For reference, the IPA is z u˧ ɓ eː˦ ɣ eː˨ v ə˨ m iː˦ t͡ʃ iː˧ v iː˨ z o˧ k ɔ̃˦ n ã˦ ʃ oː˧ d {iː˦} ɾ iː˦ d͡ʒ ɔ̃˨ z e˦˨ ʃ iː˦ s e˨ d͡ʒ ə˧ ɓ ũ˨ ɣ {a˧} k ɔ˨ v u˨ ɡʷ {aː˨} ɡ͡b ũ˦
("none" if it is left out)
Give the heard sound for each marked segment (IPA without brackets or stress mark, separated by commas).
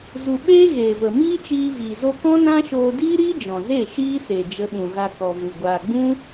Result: iː˦, a˧, aː˨